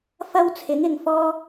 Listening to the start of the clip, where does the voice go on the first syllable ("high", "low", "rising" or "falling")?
high